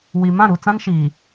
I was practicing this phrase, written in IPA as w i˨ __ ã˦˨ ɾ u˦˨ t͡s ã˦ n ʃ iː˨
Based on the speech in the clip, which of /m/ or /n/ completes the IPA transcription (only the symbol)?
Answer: m